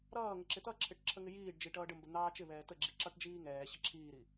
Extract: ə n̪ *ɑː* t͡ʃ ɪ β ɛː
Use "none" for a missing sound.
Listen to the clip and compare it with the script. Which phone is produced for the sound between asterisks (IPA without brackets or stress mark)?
ɑː